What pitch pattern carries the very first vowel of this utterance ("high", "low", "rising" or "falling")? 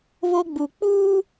high